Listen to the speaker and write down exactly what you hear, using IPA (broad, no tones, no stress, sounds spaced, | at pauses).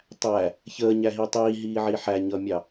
tˤ æ | ç əː ɲ æ ɦ i tˤ iː ɦ iː ʕ i ħ æ ɲ ʌː mʲ ɑ